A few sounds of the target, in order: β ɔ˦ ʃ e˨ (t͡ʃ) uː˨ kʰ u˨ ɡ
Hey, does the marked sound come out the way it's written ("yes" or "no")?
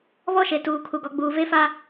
no